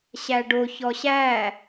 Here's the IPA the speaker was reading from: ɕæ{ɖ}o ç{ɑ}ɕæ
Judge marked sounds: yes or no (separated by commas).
yes, no